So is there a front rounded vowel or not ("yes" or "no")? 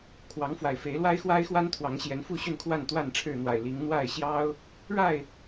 yes